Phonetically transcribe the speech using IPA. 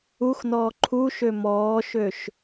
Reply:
uxnɔː ǃʰuʃø mɔːʃøʃ

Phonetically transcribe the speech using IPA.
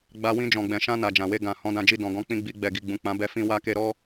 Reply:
ɡ͡ba˧wĩ˧ d͡ʒɔ̃˨ɡ͡bɛ̃˨ʃã˧ na˨d͡ʒã˨we˧ ɡã˨ hɔ̃˨˦dã˧d͡ʒi˧ dɔ̃˨ɡɔ̃˧k͡pĩ˧ɡ͡bi˧ ɡ͡bɛ˨ɡi˨ ɡ͡bũ˨k͡pã˨˦ bɛ˧ fĩ˧ wa˧ke˧ɾɔ˦

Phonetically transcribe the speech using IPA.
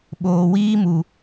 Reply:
ɓoː˨ wiː˦mu˨

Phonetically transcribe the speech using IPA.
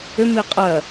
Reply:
ʏmi qʼɜ

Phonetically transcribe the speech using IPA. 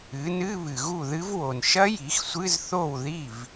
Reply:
ɨ˩˥nɨ˧˥˧ βɨ˨ɣu˥˩ðɨ˦˥vwo˨n ʃɐ˦˥ji˩˥xsʷɨ˧˥˧z θo˥˩wði˥˩v

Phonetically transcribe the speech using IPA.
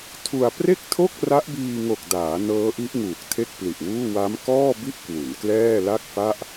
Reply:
tʰu˧a̯ pre˥˩k̚tʰo˥˩k̚ ra˦˥ʔbiː˧ŋo˨˩k̚daː˩˦ nɤː˦˥ʔi˦˥ʔŋuː˨˩k̚ tʰe˥˩k̚pli˨˩ʔwuː˥˩ wa˦˥m kɔː˥˩bi˥˩ʔ kwu˩˦nklɛː˥˩la˥˩k̚fa˥˩ʔ

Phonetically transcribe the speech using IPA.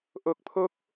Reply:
ʔo˨˩k̚pʰo˦˥k̚

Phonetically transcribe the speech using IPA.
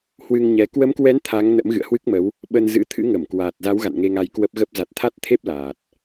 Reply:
hwɨ˧ŋɲɛ˨˦ kwə˨˦mkwɛ˨˦n t̪ʰa˨˦ŋnə̰˧˥m ɣɨ̰˧˨ə̯hwɨ˦˥k̚mə˨˦w | ɓə˧nzɨ̰˧˥ t̪ʰɨ̰˧˥ŋə˧˩mkwaː˨˩t̚za˨˦w ɣa̰˧˨nŋe˧ŋa˧j kwə˦˥p̚ɣə˦˥p̚ za˨˩t̚t̪ʰa˦˥t̚t̪ʰe˦˥p̚ laː˨˩t̚

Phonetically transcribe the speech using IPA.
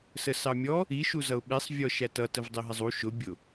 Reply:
səsɑmʲɔ | i ʃuzʌʊ̯ɓisˤ vʲɔʃætʌ təvdˤiɦɪzˤu ʃʊ bʲʊ

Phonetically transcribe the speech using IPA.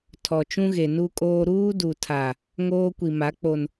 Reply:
tʰɔ˨t͡ʃũ˦ɣe˨ nu˦kʼoː˦ ɾuː˦du˨tʰa˨ | ŋoː˦kʷi˨ma˨˦k͡po˨n

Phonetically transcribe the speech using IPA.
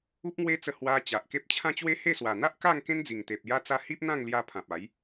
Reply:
u˦p̚ŋwe˦t͡sə˧ hwa˧ t͡ɕa˨ʔke˦p̚ t͡ɕʰã˦t͡ɕwe˦he˥˧swa˨˩ n̪a˦ʔka˥˧ŋ kẽ˦nd͡zi˨˩ŋt̪e˨p̚ ja˧t͡sa˧ hi˦p̚n̪ã˥˧ŋlja˧ pʰã˨p̚a˨˦j

